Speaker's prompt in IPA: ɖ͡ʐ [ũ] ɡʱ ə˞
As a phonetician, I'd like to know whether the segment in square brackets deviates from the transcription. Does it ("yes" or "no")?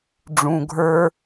no